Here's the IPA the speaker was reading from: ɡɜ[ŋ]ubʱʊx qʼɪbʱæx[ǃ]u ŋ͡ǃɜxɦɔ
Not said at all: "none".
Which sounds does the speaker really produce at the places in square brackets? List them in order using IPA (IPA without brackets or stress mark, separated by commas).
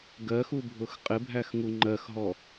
x, ŋ